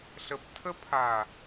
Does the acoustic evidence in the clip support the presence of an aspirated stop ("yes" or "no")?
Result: yes